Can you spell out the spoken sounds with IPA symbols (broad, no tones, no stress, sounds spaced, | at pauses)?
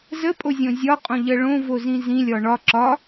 z ə pʼ o zʲ õ zʲ ɒ qʼ õ ʎ ɜ ɭ õ v o z ĩ z ĩ lʲ ɒ ɳ ɒ ǁ ɒ